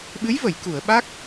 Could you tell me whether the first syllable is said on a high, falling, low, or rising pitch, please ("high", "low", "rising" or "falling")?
rising